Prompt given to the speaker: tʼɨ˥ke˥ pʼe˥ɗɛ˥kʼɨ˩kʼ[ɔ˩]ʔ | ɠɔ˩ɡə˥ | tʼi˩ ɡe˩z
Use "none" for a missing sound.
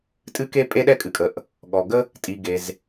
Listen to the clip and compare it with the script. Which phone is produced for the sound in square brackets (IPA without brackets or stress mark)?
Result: ə˩